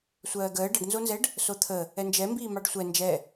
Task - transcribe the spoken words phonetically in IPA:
sʷɜːɡəː ɖəɖnzonzɛɖ | sot̪ʰə | ɛnd͡ʒɛmbiːmɑɖ sʷɛ nd͡ʒɛ

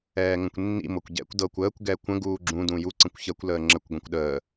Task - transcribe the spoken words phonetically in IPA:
ɛːŋə̃kʷnːḭ mɤkʷɟɛ̰kʷ dɤkʷ əːkʷ ɡɛkʷə̃ ɡuːɡ͡ǁũ dũju ǀə̃kʷçəkʷ ləːŋ͡ǁəkʷ ɡʷɛ̃kʷɗəː

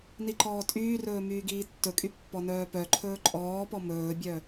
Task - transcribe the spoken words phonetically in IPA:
niǃɔːtʼyːrɵː myːɡiːtːɵkʼy pːɔnœːpœǃʰɵː ǃʼɔːpɔ mɵːbʲœ

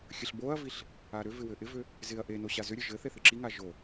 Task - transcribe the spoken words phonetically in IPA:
xʲəɬboɐ̯viɬ | aɾʏvɪ wɘʔɪvʏ | zɪɐ̯ ʔeno ɕazʏɾʲɘ ʒɘθe θɪǁiŋa ʒo

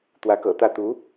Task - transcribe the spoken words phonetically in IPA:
t̪wä˧˥kɤ̰˨˩t̪ä˥˩ t̪u˧˥

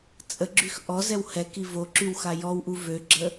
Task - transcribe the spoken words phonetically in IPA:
t͡sʼəɡ͡ǁyx ʔɔzɛw hɛki voǁyw xajɔwʔu vøɡ͡ǁə

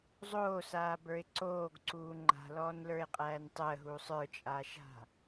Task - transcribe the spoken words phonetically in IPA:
zˤoːsaːbə˞ɪ̯ ǀoːɡǀuː ŋ͡ǃa̤lɔːnlə˞ɪ̯qʼæːn tˤəːɦuːsˤ ə˞t͡ʃʼaːʃɦa̤

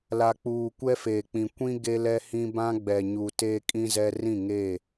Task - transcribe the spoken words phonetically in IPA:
la˨k͡puː˨kʷɛ˦ feː˨k͡pĩ˨ kʷĩ˦ ɡe˦lɛ˦hĩ˦ bã˦ɡ͡bɛ˨ɲu˨ teː˦kʼĩ˦zɛ˦ rĩ˦˨ŋeː˦˨

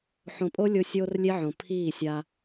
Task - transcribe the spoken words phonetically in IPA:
ħõ˨pʼo˦ lʲo˦ sʲoː˦rlʲe˦ʕõ˨ pʰiː˦˨sʲa˦

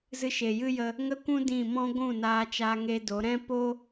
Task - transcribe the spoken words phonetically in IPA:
zɨ˧ʃeː˨jɨ˦jə˧ | ŋə˦kʷũ˦ dĩ˦˨ mɔ̃˦ɡʷũ˦˨ naː˦t͡ʃaː˦ŋe˦do˨˦ ɾɛ̃˦po˦

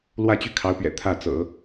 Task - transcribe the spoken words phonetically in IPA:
lwä˥˧t͡ɕy˥˩ kʰɑ˧˥ʊ̯pɥɛ̰˨˩ t̪ʰä˥˩t͡sɤ̰˨˩˦

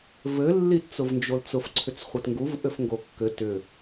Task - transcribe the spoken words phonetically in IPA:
vɘlːitt͡sʊv nd͡ʒolt͡sʊfǀʰʏt͡s χʷɘtŋɡuv ʔɘfŋɡokːɘ tʏ

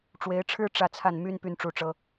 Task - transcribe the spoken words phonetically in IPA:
ʈ͡ʂwe˧˥ɪ̯ʈ͡ʂʰɻ̩˥ ʈ͡ʂä˥˧t͡sʰa˥˩n my˥n py˥˧nʈ͡ʂu˥˩ʈ͡ʂɤ˥

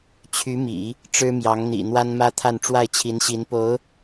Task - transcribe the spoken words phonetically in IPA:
t͡ɕʰy˧˥mḭ˨˩˦ | ʈ͡ʂɻ̩˥mjɑ˧˥ŋ n̪ḭ˨˩ n̪wa˥nmä˥t̪ʰa˥˧n ʈ͡ʂwa˥˩ɪ̯t͡ɕʰi˧˥nɕi˧˥npo˧˥ʊ̯

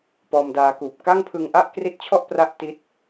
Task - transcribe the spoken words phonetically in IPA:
pɔː˧mdaː˧kuː˨˩p̚ ka˥˩ŋpʰɯ˧ŋʔa˥˩ʔ kri˦˥t̚t͡ɕʰɔ˥˩ʔ pra˥˩ʔti˦˥t̚

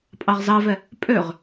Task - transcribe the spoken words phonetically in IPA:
pʼɑʁzɑvɛ | pʼøʁ

